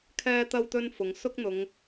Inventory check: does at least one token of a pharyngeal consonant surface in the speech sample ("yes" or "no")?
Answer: no